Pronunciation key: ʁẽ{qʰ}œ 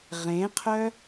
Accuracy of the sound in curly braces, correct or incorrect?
correct